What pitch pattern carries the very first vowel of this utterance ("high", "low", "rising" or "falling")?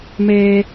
high